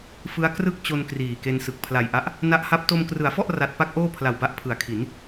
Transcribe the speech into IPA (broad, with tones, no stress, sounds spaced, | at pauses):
f ɯ˦˥ a̯ k r ɯ˥˩ k̚ t͡ɕ o˧ n k r iː˨˩ k e˧ n s ɯ˨˩ k̚ pʰ l a˨˩ j ʔ a˦˥ ʔ | n a˦˥ ʔ h a˦˥ p̚ t o˧ m k r ɯ˩˦ a̯ f ɔ˥˩ ʔ r a˦˥ t̚ p a˦˥ k̚ ʔ oː˥˩ pʰ l a˨˩ w b a˦˥ ʔ pʰ ɯ˩˦ a̯ kʰ i˩˦ n